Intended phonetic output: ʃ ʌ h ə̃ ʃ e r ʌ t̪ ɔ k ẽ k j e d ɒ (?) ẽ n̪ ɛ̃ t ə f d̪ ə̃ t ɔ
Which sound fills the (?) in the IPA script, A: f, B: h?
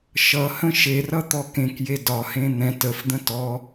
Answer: B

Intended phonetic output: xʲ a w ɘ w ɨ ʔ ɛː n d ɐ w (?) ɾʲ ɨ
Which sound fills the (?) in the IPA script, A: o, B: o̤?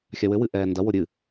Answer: A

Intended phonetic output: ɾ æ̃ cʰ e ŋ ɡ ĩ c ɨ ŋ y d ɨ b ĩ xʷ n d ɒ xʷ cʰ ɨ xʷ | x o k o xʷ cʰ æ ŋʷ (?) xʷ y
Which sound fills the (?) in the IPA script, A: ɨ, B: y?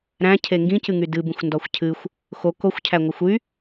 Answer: A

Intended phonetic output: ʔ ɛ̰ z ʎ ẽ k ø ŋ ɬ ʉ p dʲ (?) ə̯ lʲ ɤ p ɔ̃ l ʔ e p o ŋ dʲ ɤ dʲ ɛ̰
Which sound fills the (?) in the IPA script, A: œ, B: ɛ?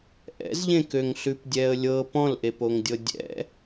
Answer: B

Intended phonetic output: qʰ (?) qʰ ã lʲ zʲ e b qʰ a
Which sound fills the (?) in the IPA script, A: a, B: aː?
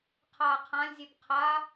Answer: B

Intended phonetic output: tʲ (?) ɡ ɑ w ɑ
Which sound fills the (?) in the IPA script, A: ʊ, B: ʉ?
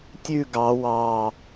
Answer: B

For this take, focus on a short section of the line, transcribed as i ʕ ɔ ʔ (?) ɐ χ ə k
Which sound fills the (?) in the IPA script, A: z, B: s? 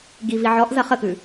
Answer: A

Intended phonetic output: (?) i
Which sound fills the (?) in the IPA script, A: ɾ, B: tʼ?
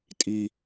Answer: B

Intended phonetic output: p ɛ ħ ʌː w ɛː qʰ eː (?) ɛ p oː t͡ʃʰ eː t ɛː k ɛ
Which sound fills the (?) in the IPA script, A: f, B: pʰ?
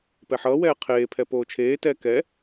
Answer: B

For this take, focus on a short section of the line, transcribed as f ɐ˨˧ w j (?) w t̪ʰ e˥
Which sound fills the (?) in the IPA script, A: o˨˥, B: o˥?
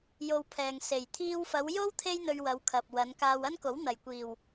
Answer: B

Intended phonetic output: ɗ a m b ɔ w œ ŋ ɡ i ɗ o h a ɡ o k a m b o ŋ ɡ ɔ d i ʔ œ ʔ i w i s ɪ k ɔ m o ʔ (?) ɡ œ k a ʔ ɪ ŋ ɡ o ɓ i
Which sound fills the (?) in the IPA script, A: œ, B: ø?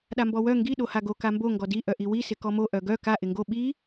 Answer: A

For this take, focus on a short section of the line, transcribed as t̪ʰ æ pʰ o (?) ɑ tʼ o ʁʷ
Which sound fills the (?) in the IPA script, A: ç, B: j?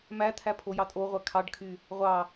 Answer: B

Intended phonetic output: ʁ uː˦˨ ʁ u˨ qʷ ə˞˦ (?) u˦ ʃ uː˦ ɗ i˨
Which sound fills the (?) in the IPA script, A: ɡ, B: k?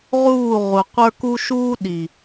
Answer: B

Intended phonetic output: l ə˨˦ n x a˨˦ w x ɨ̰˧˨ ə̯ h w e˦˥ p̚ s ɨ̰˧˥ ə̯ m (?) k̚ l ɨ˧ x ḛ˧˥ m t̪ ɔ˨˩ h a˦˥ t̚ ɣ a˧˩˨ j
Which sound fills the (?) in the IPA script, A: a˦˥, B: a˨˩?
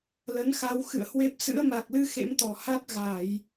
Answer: B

